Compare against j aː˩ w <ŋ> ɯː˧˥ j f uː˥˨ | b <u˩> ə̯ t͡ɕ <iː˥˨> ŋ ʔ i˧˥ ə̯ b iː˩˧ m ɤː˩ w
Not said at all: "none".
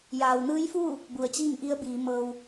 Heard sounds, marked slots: n, u˩, iː˥˨

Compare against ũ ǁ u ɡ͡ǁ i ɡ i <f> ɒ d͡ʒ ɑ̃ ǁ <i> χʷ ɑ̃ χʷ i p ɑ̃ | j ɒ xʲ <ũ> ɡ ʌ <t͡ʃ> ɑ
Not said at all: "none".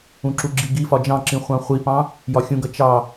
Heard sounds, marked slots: f, ĩ, ũ, t͡ʃ

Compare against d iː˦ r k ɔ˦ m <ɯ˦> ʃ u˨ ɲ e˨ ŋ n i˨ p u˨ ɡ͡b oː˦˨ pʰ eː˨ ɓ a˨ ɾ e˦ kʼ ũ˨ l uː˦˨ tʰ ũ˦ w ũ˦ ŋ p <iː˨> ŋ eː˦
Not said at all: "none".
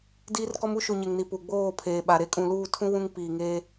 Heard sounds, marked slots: u˦, iː˨

